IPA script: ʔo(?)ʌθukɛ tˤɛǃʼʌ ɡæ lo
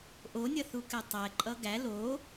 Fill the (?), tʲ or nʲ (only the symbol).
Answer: nʲ